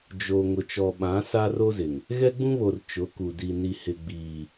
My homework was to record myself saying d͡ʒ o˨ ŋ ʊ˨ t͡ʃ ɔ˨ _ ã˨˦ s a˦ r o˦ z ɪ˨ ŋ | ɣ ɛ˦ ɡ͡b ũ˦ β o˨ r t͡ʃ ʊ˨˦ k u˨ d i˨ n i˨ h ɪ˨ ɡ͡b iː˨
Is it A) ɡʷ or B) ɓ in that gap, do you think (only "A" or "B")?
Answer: B